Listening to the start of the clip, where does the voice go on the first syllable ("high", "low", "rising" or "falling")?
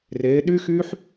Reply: rising